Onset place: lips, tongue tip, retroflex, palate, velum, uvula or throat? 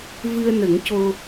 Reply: lips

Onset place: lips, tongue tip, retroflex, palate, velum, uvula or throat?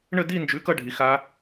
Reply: retroflex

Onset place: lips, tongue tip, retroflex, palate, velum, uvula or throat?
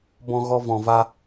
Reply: lips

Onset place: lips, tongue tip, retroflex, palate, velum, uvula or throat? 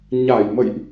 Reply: palate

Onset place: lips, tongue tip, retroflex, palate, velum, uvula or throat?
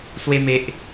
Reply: tongue tip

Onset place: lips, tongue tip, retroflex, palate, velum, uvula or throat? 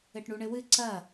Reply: retroflex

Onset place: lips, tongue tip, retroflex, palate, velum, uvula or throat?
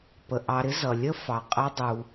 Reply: lips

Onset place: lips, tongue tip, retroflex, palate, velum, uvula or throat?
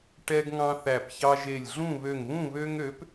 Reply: retroflex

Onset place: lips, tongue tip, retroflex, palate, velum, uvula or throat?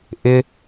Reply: throat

